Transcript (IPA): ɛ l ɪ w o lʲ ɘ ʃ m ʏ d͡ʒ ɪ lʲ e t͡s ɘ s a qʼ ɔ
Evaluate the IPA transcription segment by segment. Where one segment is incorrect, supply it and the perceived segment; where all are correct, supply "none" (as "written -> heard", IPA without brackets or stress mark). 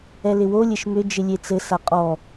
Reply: none